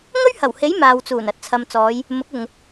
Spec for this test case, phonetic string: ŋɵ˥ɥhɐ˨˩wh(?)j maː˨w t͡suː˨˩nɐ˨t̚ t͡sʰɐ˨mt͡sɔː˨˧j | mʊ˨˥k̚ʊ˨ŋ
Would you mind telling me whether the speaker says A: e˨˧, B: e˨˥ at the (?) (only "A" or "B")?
B